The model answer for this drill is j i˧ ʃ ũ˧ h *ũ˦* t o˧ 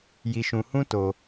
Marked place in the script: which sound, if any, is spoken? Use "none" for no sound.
ũ˦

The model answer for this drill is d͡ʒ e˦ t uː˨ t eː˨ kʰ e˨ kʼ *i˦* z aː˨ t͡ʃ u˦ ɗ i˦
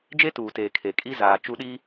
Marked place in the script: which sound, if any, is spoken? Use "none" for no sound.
i˦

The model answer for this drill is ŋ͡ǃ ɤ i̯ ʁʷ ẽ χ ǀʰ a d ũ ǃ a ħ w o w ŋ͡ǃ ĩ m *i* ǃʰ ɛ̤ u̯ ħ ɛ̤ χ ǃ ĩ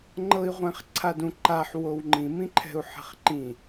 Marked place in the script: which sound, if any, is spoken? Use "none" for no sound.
ĩ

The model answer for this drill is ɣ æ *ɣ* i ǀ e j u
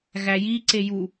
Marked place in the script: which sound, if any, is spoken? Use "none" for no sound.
j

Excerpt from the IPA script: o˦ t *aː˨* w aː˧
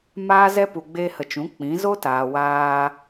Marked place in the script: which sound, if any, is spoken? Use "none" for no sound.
aː˨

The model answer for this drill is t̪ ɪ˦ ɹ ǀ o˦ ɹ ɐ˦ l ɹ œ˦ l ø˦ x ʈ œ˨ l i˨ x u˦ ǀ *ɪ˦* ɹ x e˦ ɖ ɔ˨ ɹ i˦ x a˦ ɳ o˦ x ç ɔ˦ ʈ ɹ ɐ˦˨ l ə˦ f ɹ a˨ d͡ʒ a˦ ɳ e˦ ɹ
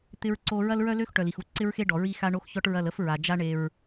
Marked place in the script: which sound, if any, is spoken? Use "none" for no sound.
ɪ˦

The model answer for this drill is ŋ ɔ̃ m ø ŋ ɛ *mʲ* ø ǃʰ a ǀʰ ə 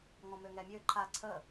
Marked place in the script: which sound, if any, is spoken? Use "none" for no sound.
mʲ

